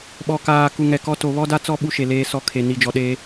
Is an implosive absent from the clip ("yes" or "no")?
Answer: no